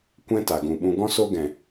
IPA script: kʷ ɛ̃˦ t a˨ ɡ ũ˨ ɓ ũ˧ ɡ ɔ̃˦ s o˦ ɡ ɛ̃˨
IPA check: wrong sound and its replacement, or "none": none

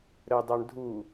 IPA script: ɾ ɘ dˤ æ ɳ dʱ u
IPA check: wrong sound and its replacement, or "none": none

